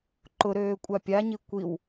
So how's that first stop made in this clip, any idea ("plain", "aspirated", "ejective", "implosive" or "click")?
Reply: click